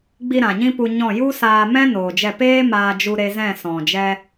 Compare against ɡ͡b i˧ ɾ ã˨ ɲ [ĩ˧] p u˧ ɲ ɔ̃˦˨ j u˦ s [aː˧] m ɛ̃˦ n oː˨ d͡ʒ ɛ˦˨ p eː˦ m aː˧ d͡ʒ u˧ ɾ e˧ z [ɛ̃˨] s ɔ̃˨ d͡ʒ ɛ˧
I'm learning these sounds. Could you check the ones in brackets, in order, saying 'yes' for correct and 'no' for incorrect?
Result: no, yes, no

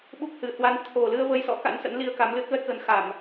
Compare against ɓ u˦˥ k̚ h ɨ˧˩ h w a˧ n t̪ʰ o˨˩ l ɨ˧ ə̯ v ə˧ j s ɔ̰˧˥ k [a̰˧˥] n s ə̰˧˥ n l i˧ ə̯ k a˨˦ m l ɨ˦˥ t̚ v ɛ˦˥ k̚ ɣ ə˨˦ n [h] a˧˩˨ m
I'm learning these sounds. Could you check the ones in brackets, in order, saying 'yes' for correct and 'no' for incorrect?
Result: yes, no

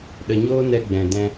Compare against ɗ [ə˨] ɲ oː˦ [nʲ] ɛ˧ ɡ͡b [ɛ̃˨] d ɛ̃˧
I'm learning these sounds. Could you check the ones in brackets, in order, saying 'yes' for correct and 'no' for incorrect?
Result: yes, no, yes

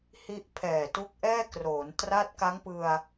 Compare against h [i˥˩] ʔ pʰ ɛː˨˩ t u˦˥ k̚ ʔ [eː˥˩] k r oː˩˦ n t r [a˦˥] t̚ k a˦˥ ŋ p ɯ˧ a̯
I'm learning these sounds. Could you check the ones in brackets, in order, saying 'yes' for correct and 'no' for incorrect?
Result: no, no, no

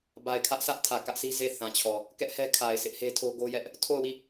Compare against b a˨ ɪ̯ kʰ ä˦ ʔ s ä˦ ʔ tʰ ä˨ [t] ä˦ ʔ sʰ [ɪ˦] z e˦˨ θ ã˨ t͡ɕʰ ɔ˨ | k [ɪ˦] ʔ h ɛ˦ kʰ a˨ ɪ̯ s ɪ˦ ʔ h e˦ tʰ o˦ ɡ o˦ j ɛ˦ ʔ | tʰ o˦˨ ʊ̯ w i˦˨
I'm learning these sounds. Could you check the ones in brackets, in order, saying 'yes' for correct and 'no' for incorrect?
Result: no, no, no

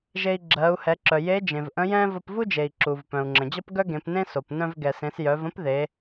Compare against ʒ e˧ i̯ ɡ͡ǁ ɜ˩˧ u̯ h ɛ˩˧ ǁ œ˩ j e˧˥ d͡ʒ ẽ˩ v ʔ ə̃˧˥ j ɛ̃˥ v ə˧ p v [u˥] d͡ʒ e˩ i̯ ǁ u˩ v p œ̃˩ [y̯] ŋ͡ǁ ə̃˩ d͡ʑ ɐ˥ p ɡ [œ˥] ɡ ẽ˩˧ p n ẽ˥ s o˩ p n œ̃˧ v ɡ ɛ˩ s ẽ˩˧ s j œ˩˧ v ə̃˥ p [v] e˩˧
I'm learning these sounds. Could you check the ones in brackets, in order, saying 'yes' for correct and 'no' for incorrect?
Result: yes, no, yes, no

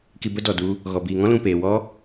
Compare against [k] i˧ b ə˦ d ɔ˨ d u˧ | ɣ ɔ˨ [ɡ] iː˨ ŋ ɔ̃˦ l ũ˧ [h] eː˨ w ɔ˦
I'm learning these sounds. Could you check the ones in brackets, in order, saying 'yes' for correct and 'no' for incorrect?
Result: yes, no, no

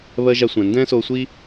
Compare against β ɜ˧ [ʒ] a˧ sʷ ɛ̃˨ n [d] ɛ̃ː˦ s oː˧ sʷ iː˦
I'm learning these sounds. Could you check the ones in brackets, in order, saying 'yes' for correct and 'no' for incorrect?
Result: yes, yes

